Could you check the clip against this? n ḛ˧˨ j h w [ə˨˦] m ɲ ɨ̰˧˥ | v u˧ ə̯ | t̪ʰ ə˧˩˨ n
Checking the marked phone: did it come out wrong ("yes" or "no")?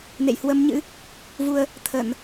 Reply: no